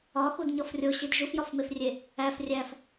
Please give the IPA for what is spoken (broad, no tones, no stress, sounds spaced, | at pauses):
ɒ x u d ɲ ɒ f rʲ o ɕ i d ʒ u f j ɒ f m e f rʲ e | æ f rʲ æ f